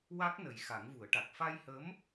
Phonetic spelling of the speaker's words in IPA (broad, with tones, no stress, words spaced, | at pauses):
wa˦˥k̚nə˨˩j xa˨˩˦ŋvu˨˩˦ə̯ʈa˨˩k̚ fa˧jhə˧˥m